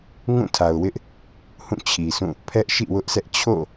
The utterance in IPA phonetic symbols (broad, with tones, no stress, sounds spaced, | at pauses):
ŋ ũ˦˨ tʰ a˨ ʊ̯ w ɪ˦ ʔ | h ũ˦˨ t͡ɕʰ i˨ sʰ ũ˦˨ | pʰ ɛ˦ ʔ ʃ ḭ˦˨ w ʊ˦ ʔ sʰ ɛ˦ ʔ t͡ɕʰ o̰˦˨